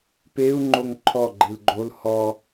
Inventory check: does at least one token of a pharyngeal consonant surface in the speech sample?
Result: no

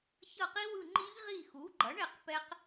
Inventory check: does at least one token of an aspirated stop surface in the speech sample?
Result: no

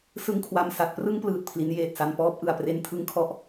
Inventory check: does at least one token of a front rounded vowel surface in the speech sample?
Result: no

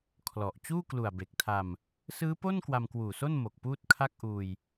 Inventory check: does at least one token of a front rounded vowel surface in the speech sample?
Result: no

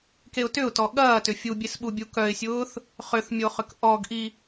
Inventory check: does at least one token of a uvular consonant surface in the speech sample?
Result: yes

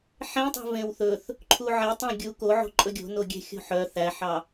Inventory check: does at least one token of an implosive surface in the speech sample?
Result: no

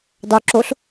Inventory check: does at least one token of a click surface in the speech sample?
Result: yes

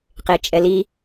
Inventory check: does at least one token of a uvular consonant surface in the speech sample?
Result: yes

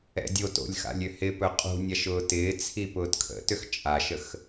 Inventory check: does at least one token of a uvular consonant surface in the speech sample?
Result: yes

